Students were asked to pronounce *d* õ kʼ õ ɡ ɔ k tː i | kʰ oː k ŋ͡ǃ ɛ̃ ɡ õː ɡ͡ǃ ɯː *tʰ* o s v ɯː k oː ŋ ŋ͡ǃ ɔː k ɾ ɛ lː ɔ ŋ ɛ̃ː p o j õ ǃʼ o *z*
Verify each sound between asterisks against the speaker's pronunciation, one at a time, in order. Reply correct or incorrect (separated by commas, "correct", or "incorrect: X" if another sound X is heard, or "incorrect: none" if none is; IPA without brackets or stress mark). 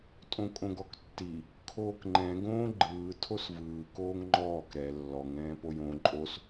incorrect: tʼ, correct, incorrect: s